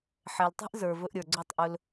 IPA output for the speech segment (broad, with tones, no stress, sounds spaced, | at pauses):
ħ ɛ˨ l tˤ ɛ̤˦ ʔ z ə˞˨ v ɵ˧ ʔ ɾʲ ə˞˨ ɡ͡ǀ ɵ˦˨ tˤ ʔ ɵ˧ l